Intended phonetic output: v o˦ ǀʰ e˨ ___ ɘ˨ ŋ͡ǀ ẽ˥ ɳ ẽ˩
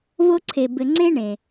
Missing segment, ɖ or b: b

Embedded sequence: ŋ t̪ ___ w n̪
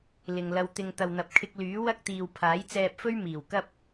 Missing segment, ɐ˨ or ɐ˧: ɐ˨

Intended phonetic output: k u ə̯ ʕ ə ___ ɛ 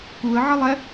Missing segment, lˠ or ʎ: lˠ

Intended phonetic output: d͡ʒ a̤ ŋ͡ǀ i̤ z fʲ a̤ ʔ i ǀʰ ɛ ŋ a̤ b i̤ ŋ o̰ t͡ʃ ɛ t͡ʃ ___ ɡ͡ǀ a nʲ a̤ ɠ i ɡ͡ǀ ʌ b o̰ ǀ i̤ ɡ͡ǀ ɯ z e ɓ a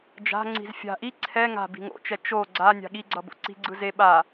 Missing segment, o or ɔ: o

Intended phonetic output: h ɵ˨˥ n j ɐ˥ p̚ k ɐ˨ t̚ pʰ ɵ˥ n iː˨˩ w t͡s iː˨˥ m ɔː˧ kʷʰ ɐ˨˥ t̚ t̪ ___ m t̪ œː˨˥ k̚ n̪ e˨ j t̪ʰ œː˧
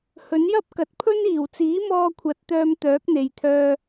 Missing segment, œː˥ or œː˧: œː˧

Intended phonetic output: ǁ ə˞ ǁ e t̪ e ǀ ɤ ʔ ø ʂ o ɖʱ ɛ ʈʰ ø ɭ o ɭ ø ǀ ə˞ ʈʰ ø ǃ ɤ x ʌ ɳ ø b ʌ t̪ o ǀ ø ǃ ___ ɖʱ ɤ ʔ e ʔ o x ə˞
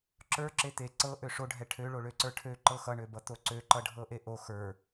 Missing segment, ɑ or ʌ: ʌ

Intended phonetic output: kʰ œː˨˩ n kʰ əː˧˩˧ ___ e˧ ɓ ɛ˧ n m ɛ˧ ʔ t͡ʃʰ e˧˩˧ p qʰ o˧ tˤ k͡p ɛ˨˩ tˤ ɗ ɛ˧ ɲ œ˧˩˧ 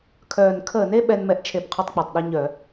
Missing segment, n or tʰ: n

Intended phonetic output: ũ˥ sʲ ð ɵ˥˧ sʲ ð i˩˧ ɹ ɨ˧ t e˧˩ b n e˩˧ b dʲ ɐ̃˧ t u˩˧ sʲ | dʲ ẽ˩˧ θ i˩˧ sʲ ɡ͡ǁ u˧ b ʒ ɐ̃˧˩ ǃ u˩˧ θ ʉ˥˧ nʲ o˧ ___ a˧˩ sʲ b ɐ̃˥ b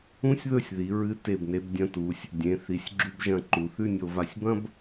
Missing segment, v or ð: v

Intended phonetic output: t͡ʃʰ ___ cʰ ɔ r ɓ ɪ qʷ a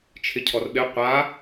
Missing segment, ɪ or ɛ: ɪ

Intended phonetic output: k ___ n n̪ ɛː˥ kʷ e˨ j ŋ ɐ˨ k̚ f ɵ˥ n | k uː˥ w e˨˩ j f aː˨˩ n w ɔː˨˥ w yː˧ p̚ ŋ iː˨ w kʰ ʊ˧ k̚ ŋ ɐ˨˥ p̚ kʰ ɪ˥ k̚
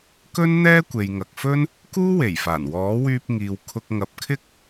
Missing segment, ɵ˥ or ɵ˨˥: ɵ˥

